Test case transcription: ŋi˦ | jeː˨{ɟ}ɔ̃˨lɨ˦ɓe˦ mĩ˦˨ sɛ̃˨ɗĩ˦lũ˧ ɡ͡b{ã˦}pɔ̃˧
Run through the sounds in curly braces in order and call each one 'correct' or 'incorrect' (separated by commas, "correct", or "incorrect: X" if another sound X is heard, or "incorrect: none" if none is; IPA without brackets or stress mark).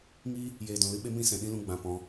incorrect: d, incorrect: ã˨